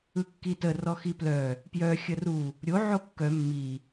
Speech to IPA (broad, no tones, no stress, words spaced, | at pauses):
ɯkːitə rɔxiplœ | pjœ xʲəru | ɾʲo ʕokːœ mːi